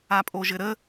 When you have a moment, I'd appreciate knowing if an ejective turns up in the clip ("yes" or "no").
yes